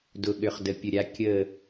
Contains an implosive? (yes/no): yes